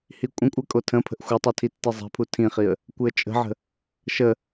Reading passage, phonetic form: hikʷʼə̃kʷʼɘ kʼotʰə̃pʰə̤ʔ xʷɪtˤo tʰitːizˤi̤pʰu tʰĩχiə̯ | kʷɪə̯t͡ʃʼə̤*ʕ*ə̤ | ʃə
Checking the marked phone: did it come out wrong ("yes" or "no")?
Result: no